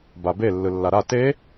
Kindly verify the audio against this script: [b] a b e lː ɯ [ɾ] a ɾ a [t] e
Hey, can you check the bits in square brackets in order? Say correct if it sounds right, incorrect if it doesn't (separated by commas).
correct, incorrect, correct